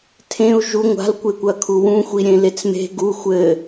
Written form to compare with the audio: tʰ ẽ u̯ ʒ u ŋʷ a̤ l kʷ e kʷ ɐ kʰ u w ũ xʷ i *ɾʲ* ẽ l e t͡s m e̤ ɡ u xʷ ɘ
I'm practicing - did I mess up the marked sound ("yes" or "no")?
no